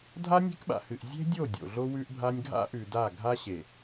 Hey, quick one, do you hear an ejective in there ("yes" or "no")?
no